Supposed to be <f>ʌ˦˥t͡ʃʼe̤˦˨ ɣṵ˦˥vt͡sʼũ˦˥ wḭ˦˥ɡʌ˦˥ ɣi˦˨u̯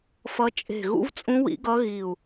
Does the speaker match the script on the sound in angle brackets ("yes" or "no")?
yes